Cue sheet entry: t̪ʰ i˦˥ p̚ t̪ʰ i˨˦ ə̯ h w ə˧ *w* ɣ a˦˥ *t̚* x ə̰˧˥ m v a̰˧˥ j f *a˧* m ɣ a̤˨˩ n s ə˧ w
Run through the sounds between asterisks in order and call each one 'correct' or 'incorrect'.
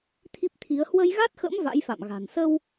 incorrect, correct, incorrect

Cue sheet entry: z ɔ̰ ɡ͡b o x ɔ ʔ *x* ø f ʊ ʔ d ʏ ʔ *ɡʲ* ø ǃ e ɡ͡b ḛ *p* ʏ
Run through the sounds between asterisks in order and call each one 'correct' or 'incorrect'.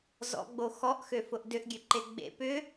correct, correct, correct

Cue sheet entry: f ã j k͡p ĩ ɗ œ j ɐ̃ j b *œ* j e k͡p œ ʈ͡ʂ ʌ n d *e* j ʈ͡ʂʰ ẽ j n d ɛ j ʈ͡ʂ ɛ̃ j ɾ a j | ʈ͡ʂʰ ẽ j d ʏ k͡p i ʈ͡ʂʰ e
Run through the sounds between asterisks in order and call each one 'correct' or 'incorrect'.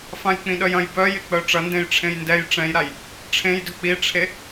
correct, incorrect

